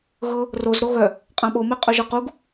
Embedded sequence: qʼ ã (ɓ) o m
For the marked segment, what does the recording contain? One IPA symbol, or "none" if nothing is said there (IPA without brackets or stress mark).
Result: ɓ